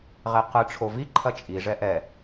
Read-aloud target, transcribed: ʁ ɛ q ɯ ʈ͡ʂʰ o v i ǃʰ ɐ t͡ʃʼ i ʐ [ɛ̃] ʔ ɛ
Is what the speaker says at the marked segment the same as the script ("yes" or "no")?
no